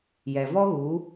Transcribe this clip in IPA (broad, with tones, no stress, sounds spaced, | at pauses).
j ɛ˨ v ɔ˦ ɣ u˨˦